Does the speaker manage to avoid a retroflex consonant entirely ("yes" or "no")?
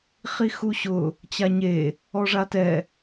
no